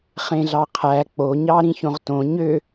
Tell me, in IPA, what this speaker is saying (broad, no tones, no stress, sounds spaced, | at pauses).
χ ẽ ɮ ɑ qʰ æ k͡p o ɲ ɑ ɾ ĩ ç õ ʁ t õ ɲ ø